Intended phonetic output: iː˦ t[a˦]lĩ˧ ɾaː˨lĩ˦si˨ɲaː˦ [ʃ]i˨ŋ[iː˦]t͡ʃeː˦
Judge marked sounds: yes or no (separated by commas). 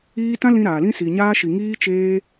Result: no, yes, yes